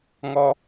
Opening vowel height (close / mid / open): mid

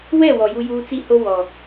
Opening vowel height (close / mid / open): mid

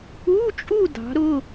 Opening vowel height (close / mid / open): close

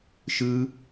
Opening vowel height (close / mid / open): close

